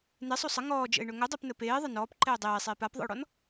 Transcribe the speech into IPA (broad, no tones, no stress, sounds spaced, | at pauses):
n e sˤ o sˤ ə ŋ ɔː d͡ʒ ə̰ ɪ̯ ɳ ɵ ŋ ɵ dˤ ɛ p n ə p eː ðˤ ə n ɔː p ǃ ɛː dˤ eː sˤ eː p a p ðˤ ə̰ ʊ̯ ɽ ɔ n